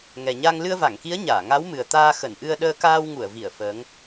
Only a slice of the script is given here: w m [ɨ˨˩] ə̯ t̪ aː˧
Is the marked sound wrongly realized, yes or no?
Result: no